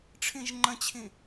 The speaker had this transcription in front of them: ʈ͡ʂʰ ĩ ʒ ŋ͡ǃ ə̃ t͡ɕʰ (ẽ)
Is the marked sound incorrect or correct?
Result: incorrect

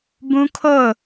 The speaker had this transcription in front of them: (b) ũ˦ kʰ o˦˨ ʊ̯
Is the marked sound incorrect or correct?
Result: correct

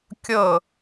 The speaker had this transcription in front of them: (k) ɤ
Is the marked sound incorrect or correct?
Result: incorrect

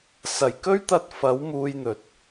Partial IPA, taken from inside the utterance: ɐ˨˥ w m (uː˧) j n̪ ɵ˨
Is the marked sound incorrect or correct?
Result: correct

